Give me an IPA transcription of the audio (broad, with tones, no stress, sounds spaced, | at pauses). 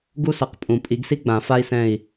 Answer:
ɡ u˥ s ʌ˨˩˦ q pʼ ũ˨˩˦ pʼ i˨˩˦ ɡ s i˥ ɡ͡b ã˨˩˦ f a˥ i̯ s ɛ̃˦˨ i̯